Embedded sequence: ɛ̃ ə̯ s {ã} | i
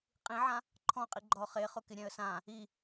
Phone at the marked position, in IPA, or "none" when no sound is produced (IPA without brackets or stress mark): ã